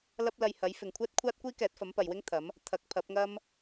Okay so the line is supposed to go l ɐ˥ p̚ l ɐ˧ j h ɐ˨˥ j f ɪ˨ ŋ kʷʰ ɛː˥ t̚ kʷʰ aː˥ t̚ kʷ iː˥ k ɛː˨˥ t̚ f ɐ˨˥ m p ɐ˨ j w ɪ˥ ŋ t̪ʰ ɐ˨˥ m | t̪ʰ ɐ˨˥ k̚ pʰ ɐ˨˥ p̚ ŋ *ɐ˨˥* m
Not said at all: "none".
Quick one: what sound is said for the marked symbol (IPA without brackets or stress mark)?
ɐ˥